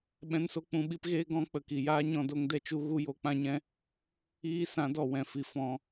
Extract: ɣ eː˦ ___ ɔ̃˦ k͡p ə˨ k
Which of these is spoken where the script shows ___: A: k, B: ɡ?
B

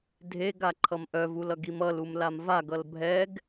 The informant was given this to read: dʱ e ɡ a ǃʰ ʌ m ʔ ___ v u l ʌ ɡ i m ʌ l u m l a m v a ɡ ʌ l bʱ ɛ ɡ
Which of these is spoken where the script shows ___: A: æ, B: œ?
B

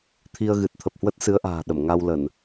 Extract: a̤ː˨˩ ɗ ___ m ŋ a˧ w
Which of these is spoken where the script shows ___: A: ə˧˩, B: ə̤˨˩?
A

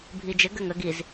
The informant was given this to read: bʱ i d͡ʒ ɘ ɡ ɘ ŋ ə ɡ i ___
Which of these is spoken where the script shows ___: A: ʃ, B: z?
B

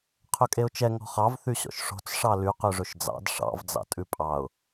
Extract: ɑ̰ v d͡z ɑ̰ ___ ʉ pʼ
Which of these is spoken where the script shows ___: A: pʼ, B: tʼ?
B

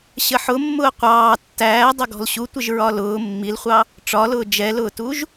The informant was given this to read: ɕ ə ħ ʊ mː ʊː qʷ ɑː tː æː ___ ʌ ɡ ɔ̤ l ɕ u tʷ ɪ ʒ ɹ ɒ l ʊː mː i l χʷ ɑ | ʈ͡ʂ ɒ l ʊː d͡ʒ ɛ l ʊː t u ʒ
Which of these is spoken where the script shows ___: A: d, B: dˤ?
B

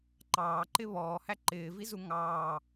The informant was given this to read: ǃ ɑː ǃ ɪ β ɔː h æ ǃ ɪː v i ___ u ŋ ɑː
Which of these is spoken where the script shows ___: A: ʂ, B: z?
B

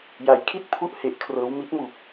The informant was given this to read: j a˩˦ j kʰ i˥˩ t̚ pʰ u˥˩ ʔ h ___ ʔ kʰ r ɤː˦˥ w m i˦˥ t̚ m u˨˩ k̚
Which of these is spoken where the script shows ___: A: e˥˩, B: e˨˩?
B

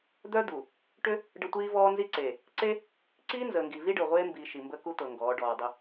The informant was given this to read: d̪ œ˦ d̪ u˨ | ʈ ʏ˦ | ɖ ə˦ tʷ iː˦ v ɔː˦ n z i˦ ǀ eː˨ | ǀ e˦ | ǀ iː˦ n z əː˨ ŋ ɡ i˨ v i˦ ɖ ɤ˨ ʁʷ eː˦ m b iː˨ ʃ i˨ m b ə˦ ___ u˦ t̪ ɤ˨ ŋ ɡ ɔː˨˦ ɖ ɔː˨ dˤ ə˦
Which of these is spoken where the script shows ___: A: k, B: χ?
A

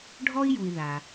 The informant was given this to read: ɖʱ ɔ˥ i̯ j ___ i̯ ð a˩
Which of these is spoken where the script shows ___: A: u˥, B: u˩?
B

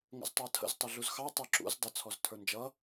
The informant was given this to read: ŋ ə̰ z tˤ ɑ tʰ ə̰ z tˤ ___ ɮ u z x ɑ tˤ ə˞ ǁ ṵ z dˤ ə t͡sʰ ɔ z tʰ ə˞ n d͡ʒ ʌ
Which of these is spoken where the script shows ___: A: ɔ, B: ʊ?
B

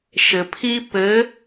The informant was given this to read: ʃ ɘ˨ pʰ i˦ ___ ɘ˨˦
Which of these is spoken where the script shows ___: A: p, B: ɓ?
A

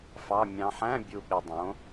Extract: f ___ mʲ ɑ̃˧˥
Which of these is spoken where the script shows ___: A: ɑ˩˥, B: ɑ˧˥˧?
B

